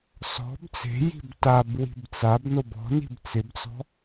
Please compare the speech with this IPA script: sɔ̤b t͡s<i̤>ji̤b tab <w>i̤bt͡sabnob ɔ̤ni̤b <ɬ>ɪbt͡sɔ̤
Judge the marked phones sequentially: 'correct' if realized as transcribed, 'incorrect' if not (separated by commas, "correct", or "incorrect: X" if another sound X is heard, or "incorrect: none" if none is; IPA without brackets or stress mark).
incorrect: e̤, correct, incorrect: t͡s